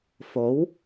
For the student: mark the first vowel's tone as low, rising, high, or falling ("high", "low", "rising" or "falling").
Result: rising